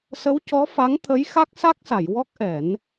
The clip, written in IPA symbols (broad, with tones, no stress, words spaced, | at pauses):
sə˧˥wcɔ˧˥fa˧˥ŋ t̪ʰə˧˥jxa˦˥k̚sa˦˥k̚sa˨˩˨j wɔ˦˥k̚ʔɛ˨˩˦n